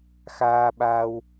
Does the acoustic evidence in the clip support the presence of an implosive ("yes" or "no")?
yes